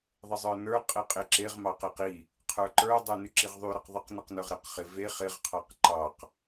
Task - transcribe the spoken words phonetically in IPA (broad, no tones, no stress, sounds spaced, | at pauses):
ðˤ ɪ zˤ ə˞ n ə˞ qʼ e qʼ ɪ ǁ e ʁ m ɑ q e q i | qʰ ə˞ ǃ ə˞ dˤ ə˞ n y ǁ i ʁ ðˤ y ɾ ə q ðˤ ə q n ɪ q n ə˞ ʁ ɾ e q χ ɪ v e χ ɪ ʁ qʰ ɑ q ǃ ɑ q